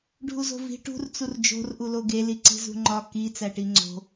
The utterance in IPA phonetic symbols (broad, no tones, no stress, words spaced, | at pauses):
ɖʱuzo̤vi̤ ʈṳr t͡surd͡ʒo̤r ʔuloɡe liǀi̤zṳŋ͡ǃɒ ki t͡sæʈiŋ͡ǀo̤